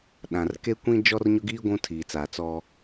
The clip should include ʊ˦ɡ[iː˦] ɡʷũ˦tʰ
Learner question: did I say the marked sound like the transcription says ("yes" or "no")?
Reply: yes